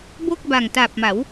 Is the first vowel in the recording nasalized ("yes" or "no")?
no